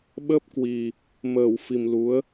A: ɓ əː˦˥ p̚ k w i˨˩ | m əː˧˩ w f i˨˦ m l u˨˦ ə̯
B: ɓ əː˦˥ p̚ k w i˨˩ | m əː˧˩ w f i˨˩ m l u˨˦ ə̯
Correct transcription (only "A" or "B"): B